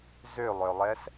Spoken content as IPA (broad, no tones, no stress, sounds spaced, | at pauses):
z ø lˠ œ lˠ ɛ s